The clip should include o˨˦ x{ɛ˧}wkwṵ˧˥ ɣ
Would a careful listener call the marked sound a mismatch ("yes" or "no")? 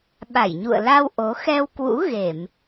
no